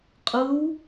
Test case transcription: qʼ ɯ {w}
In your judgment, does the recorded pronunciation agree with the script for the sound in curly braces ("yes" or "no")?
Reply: yes